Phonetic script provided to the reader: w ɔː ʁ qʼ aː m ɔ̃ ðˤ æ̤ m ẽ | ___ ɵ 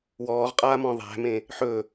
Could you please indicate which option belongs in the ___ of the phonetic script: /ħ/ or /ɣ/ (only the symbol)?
ħ